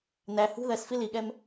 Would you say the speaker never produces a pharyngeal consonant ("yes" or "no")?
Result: yes